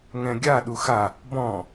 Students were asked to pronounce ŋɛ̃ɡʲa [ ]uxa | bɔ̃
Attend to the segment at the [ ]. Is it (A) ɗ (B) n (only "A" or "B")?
A